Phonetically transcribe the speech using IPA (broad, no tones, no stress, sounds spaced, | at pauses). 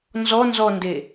n z ɔ n z ɔ n d e